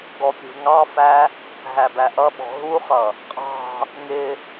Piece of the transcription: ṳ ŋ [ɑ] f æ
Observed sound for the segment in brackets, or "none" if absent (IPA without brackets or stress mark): ɑ